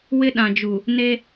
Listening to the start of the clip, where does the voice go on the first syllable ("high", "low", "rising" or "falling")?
high